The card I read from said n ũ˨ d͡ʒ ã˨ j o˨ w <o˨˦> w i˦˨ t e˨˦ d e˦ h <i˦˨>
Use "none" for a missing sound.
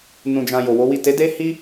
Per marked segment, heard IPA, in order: o˨˦, i˦

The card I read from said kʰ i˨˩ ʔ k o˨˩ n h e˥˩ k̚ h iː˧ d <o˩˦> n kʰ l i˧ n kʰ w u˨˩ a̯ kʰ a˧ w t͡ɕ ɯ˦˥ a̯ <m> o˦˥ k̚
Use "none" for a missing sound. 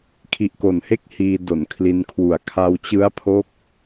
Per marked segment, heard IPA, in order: o˩˦, pʰ

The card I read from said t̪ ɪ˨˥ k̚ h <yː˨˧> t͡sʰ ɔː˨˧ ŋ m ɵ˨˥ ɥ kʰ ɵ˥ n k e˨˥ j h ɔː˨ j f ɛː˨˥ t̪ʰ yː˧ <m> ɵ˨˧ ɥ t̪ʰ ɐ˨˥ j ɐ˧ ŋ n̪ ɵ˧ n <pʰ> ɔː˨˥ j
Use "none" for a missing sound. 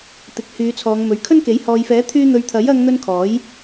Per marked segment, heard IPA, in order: yː˨˧, n̪, kʰ

